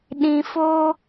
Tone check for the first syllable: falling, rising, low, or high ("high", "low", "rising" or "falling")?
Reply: low